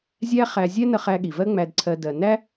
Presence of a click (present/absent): present